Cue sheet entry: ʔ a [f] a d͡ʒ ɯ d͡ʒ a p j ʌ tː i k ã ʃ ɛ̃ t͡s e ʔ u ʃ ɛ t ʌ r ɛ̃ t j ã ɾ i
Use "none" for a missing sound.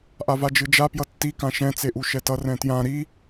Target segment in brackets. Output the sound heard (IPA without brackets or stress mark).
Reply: v